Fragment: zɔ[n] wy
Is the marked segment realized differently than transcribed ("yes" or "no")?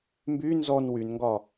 no